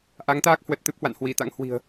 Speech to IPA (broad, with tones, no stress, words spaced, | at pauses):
ʔa˨˦ŋt̪aː˦˥k̚ hwə˨˩t̚ t̪ɨ˦˥p̚hwa̰˧˨n hwi˧˩t̪a̰˧˥ŋhwi̤˨˩ə̯